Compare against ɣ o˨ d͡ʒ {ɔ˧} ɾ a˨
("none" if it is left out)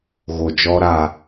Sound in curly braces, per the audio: ɔ˧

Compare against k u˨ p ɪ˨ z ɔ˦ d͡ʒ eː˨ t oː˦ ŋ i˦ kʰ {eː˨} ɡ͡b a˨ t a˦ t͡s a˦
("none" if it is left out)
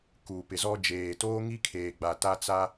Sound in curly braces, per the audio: eː˨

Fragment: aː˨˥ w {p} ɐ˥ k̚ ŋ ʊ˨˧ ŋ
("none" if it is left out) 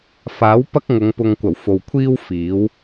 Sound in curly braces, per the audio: p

